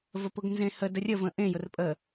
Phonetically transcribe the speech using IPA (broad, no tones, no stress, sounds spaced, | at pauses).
v ə p ʊ ɡ n z ẽ h ə d ə rʲ ə v ə̃ ʔ ẽ j ʊ r pʼ ə